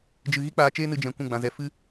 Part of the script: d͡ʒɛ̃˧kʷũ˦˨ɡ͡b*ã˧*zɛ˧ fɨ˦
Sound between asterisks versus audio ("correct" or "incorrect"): correct